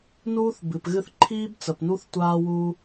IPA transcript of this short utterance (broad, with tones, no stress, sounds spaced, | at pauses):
n uː˦ θ b ɨ˨ p ɣ ɨ˦ θ ǃʰ iː˦ b t͡s ə˨ p n u˦ θ tʷ aː˦ w u˦